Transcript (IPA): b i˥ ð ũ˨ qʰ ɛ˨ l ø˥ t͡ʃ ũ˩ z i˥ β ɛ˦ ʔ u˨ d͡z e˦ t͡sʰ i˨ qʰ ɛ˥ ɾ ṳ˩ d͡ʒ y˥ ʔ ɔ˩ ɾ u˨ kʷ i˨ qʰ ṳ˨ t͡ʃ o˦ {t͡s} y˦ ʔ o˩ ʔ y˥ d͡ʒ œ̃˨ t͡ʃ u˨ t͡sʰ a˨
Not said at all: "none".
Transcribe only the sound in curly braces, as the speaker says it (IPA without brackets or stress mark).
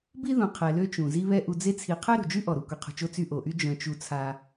t͡s